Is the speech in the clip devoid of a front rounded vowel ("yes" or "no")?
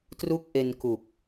yes